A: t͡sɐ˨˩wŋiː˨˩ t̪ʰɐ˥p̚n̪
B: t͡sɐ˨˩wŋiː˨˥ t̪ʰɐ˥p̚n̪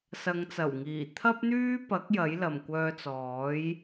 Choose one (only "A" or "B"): A